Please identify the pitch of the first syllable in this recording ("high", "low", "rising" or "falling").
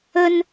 high